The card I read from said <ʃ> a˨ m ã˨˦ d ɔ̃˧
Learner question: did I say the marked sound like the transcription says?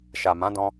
yes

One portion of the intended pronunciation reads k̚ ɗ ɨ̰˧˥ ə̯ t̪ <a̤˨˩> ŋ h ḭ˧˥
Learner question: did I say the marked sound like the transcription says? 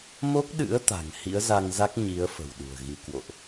yes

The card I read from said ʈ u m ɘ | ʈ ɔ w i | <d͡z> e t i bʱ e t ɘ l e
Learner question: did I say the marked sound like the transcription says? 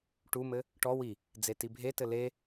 yes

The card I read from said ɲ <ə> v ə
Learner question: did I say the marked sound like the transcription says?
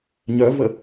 no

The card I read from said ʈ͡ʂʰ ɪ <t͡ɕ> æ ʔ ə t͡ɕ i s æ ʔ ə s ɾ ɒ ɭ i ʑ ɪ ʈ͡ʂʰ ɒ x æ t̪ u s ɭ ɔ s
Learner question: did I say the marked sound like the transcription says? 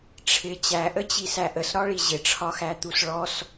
yes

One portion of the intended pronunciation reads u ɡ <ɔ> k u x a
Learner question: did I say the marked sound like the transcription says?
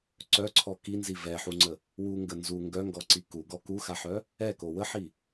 yes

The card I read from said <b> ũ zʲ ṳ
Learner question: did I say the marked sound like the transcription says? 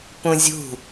no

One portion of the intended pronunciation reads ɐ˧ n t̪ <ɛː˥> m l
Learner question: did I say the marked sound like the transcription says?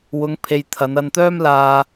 no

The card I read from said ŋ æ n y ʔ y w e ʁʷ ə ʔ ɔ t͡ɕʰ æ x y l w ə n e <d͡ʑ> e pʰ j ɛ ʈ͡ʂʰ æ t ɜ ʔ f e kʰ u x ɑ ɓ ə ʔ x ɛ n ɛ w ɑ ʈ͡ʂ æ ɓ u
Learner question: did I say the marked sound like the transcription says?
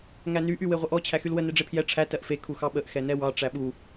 no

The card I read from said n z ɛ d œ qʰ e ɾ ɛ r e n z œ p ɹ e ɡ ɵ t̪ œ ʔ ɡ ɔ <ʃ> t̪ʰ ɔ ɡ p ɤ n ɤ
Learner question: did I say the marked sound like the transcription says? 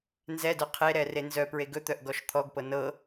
yes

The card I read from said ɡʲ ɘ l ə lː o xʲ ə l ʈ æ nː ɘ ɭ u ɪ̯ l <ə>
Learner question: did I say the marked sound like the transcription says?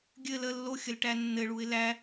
no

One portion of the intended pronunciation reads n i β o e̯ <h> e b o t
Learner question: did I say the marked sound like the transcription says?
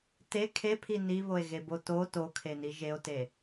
no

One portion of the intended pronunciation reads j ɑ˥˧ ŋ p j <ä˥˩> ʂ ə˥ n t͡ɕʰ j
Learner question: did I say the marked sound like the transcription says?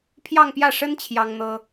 yes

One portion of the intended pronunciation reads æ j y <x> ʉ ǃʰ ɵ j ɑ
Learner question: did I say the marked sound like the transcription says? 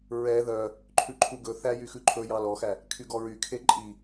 yes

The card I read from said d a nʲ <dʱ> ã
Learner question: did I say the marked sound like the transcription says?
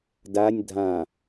yes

